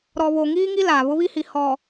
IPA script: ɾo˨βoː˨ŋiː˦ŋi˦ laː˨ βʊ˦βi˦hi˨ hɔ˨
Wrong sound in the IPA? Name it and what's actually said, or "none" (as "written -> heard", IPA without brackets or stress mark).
o˨ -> ɔ˨